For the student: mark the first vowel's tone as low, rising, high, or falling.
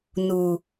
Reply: low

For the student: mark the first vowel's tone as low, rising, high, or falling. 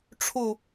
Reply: falling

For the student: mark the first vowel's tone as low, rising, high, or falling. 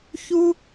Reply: high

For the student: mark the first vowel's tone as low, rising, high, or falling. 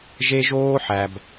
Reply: high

